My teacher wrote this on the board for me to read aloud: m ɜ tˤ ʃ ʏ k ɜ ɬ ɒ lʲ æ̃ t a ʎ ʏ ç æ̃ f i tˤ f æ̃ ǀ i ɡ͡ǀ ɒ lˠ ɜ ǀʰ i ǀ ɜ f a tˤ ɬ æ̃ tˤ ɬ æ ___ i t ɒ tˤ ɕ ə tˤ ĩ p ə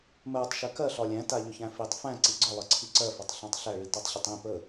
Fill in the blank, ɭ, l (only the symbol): ɭ